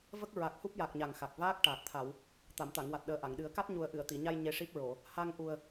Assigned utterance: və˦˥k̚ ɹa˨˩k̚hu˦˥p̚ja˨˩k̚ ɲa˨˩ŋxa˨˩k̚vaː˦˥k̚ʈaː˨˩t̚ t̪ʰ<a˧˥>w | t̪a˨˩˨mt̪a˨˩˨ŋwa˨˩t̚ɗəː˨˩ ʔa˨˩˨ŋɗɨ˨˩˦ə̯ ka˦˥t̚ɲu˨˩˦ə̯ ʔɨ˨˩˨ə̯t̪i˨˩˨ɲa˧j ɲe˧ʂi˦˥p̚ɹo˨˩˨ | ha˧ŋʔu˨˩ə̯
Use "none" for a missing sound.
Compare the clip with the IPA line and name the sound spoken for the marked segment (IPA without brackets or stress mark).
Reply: a˨˩˨